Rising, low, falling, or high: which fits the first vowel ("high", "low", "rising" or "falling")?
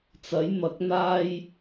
rising